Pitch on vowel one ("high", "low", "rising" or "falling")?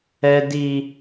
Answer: high